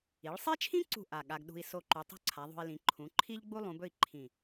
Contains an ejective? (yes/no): no